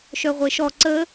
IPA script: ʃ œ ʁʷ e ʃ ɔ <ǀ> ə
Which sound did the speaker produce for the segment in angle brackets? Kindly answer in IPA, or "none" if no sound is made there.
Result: ǀ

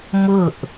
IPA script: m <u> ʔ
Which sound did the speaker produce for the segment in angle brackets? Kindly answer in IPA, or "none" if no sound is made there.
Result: ʊ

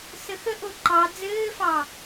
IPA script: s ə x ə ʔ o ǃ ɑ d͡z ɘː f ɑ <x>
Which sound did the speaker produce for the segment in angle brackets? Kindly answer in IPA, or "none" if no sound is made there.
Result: none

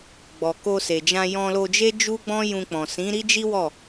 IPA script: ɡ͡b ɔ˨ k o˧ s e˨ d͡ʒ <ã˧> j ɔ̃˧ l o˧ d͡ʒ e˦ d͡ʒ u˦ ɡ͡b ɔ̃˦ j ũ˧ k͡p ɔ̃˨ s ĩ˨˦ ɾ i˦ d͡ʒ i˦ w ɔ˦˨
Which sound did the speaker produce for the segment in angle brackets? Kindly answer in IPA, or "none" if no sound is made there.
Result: ã˧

